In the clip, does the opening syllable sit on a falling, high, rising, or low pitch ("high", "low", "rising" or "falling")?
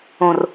low